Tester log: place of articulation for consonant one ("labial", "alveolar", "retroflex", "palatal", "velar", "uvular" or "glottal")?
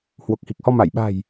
glottal